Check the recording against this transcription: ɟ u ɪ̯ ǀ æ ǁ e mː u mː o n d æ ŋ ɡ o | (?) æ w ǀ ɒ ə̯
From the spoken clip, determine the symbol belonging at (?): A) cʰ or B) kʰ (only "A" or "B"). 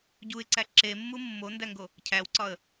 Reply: A